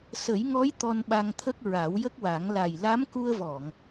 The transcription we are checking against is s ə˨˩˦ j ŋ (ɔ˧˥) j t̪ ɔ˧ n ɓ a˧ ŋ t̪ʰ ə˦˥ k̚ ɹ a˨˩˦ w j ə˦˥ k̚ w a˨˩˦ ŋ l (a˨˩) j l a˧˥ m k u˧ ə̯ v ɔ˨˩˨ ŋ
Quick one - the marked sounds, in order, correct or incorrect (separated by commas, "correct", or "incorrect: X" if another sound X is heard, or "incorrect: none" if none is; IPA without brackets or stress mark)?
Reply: correct, correct